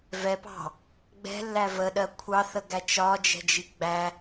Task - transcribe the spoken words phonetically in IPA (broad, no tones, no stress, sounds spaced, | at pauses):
v ɛ p ɑ̤ | ɡ͡b ɛ̤ lː æ v ə ɗ ɜ kʷʰ ɑ θ ə ɡ æ t͡ʃ ɒ d͡ʒ ɛ̤ d͡ʒ i ɡ͡b æ